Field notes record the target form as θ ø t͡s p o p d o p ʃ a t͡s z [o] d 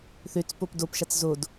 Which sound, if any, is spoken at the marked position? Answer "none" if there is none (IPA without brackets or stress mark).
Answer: o